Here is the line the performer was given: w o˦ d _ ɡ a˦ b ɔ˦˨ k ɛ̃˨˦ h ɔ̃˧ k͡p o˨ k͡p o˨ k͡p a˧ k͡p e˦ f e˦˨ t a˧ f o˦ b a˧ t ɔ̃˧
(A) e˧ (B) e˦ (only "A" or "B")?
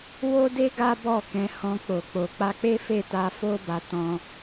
B